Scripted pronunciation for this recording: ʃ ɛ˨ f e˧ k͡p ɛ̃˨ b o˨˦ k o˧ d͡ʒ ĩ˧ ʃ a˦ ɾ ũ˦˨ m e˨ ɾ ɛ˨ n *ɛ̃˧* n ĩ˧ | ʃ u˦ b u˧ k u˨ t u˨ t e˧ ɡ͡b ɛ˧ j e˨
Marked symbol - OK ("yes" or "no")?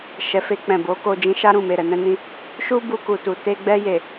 yes